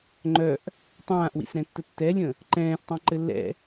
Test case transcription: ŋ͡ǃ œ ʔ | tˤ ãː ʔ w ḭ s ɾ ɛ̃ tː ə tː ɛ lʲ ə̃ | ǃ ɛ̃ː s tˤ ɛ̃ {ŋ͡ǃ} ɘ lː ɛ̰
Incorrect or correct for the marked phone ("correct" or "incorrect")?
incorrect